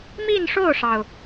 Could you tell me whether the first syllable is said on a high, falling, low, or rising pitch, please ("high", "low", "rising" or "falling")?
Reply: falling